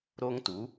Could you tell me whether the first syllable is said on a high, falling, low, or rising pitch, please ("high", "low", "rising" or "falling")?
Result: high